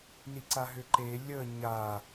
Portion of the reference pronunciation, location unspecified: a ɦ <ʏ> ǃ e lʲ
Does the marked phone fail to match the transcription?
no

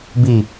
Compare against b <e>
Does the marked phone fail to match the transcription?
yes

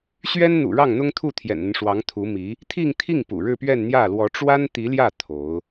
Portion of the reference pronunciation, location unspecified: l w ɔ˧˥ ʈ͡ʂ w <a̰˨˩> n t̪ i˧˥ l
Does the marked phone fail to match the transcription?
yes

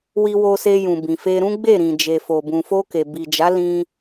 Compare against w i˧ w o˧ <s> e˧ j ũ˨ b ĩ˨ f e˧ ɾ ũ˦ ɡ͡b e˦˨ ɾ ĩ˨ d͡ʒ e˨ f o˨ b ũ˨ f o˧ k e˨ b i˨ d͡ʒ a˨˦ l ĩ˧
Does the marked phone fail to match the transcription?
no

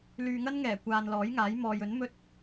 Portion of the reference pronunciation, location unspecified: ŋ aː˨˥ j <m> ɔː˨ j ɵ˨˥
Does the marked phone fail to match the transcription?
no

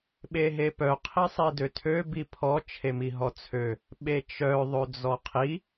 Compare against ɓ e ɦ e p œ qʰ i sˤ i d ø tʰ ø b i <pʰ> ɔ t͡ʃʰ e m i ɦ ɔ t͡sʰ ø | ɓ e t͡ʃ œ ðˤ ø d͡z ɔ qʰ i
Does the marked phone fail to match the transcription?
no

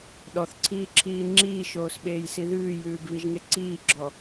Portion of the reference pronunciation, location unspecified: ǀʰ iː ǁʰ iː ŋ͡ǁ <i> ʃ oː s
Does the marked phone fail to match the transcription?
yes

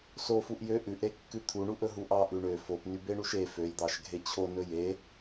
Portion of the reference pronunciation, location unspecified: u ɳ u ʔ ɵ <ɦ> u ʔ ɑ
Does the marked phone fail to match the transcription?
no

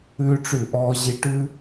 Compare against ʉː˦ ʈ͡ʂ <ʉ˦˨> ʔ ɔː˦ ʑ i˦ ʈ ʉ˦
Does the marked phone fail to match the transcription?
no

